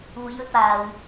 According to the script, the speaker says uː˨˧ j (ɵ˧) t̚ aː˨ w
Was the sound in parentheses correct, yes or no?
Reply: yes